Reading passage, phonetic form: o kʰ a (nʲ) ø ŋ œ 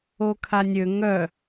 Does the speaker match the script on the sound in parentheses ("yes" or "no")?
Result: yes